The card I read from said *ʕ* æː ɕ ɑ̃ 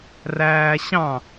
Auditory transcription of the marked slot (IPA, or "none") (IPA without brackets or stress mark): r